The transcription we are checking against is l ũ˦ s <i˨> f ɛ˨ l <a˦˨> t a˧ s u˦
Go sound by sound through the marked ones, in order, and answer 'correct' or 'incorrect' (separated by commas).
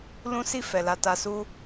incorrect, incorrect